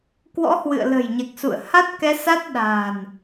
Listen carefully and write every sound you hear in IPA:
k w ɔ̰˧˥ h w ɨ̰˧˨ ə̯ l ə̤˨˩ j ɲ ɛ˨˩ k̚ s ṵ˧˨ ə̯ h a˦˥ t̚ k ɛ˧ s a˦˥ t̚ ɗ a̤ː˨˩ n

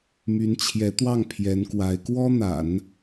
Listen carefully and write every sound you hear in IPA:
m y˧˥ n t͡ɕʰ j ɛ˧˥ t̪ w ɑ˥˩ ŋ pʰ j ɛ˧˥ n k w a˧˥ ɪ̯ k w ɔ˥ n̪ a̰˨˩˦ n

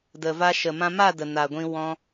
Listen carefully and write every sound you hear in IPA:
d ə˨ v a˧ ʃ ə˨ m ã˧ m a˦˨ d ə˨ n a˨ ɡʷ ĩ˧ w ɔ̃˧

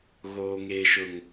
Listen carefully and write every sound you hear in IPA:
ɣ oː˦ ŋ eː˦ ʃ ʊ˦ ŋ

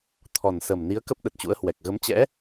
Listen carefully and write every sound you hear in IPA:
t̪ʰ ɔ˨˩ n s ə˨˩ m n i˨˦ ə̯ k ə˦˥ p̚ ɗ ə˨˩ t̚ t͡ɕ ṵ˧˥ ə̯ h w ɛ˨˩ k̚ ɣ ə˨˦ m t͡ɕ ɛ̰˧˥

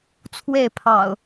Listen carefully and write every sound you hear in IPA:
t͡sʰ w e˥˨ ɪ̯ pʰ ɑ̰˨˩ ʊ̯

